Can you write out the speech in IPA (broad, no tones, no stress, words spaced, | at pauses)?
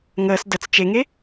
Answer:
ŋəːs dət͡s t͡ʃeŋe